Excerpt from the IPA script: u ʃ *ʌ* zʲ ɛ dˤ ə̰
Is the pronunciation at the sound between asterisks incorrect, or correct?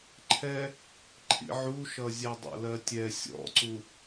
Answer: correct